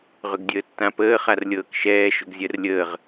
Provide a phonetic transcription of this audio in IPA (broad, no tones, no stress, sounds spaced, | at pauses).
ʁ ʏ ɡ dʲ əː tː ã p əː χ a r lʲ ɤː k ʃ ɛː ʃ ʏ ɡ zʲ ɜ r lʲ əː ʁ